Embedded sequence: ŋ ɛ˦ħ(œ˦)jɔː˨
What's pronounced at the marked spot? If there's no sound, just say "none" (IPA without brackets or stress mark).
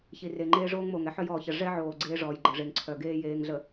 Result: œ˦